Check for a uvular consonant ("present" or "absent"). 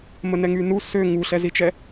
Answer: absent